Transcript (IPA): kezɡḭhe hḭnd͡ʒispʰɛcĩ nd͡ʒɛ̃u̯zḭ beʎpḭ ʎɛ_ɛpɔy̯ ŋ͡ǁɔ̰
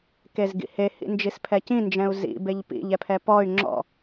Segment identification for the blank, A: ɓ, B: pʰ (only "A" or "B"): B